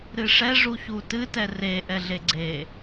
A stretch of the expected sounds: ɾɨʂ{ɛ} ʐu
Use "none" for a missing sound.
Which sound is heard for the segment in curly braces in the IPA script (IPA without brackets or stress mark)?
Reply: ɛ